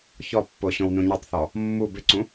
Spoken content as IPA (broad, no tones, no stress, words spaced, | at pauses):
çɔpːo ɕõwnũɲʌtˤθɔ | mːu bɪǀũ